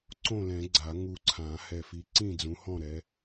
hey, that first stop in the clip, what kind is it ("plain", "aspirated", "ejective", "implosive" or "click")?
click